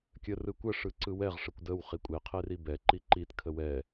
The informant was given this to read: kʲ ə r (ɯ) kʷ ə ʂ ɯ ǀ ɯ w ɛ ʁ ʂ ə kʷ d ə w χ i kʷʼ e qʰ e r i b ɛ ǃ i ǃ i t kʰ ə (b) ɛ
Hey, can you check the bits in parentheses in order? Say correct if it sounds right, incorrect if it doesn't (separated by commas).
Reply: correct, incorrect